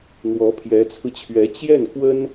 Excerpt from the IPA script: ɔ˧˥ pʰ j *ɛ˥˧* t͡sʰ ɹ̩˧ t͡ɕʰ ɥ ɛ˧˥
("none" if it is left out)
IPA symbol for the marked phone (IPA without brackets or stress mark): ɛ˧˥